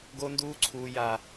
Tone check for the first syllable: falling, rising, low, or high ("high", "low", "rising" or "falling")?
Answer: high